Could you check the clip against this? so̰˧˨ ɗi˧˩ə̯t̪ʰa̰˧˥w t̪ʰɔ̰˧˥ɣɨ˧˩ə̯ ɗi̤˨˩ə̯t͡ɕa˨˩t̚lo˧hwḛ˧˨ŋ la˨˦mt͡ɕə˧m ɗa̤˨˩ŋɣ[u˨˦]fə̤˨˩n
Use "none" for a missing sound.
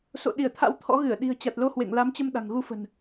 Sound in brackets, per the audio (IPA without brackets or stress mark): u˧